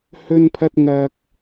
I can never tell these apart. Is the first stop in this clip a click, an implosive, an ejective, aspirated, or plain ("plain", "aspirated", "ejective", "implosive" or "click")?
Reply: aspirated